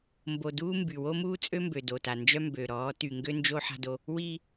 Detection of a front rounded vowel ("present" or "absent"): present